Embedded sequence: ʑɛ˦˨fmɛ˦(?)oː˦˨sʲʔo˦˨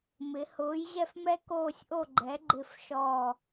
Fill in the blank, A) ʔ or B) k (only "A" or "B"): B